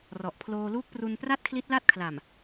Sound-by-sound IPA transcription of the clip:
r ɔ˨˩ ʔ pʰ l oː˧ l uː˦˥ k̚ p r u˧ n p r a˥˩ t̚ kʰ l i˦˥ t̚ l a˥˩ t̚ kʰ l a˨˩ m

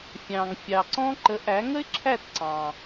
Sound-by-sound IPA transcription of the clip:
fʲ ɑ̃˩ ŋ fʲ ɑ˩ ǀ ɔ̃˧ ǃ ə˩˥ ʔ æ˩˥ ŋ ə˥ ɪ̯ ǁʰ æ˥˩ t ǀ ɑ̃˩

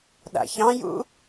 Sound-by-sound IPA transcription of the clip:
ɗ a̰ ç ɑ̃ j ṵ

